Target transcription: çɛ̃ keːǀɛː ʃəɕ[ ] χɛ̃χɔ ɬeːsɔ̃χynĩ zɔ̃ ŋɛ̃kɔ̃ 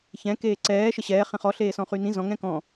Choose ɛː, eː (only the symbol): ɛː